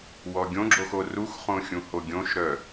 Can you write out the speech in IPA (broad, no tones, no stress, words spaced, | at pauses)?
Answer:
wɔɡʲõɡ͡ǁox oruxχõ xʲũhoɡʲõʃɾœ